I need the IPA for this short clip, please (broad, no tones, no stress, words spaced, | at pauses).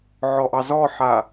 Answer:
ʕɔʔɑzɔħa